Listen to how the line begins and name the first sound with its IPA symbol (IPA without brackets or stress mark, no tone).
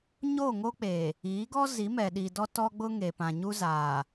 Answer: ɲ